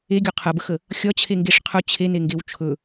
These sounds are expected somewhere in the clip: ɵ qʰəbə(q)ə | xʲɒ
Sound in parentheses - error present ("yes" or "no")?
yes